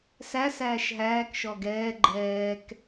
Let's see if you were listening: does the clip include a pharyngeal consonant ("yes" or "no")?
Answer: no